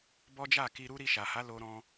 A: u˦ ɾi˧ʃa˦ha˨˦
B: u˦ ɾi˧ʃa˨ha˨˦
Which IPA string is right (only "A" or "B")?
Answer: B